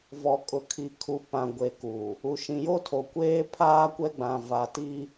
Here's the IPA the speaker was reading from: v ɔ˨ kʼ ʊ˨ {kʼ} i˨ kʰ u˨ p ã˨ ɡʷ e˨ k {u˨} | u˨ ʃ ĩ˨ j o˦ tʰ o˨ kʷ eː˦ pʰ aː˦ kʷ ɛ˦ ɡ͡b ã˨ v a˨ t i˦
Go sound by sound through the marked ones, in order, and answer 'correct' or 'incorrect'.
incorrect, correct

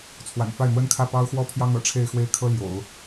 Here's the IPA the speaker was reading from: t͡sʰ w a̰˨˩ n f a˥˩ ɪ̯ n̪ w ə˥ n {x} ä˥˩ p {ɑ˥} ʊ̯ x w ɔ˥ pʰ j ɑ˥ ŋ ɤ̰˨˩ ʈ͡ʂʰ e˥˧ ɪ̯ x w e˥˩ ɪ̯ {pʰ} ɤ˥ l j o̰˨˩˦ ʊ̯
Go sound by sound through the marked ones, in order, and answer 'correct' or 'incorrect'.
incorrect, correct, incorrect

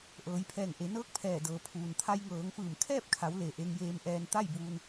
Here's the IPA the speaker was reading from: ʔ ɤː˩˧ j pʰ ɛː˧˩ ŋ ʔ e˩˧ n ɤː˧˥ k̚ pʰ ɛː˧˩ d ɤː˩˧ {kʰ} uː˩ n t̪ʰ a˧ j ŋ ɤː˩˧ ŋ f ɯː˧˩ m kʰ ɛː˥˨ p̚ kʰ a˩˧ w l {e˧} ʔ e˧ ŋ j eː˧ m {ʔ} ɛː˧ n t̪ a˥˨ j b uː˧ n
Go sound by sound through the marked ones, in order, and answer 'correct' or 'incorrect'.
incorrect, incorrect, correct

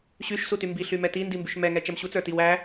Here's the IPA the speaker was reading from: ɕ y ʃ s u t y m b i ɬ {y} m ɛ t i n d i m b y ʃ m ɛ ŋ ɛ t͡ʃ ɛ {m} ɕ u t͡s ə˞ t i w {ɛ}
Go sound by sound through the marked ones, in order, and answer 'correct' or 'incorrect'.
correct, correct, incorrect

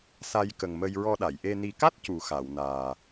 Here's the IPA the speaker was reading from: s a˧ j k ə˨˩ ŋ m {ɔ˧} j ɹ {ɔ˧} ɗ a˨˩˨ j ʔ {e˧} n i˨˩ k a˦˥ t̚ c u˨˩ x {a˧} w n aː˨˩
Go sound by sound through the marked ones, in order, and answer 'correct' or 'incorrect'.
incorrect, correct, correct, incorrect

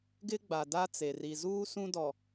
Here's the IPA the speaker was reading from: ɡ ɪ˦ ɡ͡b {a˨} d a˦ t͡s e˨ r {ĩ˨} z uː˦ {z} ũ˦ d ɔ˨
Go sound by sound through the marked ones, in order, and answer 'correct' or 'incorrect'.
correct, incorrect, incorrect

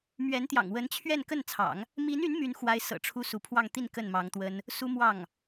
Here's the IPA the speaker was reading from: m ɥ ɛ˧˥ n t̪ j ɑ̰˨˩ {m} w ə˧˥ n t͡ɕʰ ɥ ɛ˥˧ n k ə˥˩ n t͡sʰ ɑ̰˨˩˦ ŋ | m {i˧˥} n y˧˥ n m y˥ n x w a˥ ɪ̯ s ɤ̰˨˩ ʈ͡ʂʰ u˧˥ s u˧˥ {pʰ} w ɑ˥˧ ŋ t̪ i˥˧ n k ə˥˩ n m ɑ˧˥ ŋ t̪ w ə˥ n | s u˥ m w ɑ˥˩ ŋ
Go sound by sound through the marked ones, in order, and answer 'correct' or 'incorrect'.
incorrect, correct, correct

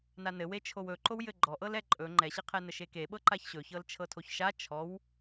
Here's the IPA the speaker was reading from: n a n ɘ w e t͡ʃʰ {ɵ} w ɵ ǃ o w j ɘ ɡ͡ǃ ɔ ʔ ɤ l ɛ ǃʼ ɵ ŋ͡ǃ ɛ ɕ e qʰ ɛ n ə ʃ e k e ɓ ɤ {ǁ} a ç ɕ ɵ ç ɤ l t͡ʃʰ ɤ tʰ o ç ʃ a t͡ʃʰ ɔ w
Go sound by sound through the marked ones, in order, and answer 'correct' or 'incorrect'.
incorrect, incorrect

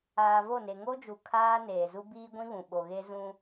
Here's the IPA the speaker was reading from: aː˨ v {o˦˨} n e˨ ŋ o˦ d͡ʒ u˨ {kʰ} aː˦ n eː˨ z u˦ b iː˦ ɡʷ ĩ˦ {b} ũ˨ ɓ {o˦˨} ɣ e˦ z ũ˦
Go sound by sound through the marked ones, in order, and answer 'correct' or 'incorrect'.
correct, correct, incorrect, incorrect

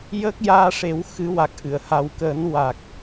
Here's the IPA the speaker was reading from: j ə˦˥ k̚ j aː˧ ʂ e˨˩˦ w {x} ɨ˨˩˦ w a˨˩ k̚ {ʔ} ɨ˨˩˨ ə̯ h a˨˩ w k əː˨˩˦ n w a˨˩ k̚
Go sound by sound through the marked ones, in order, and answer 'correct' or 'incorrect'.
correct, correct

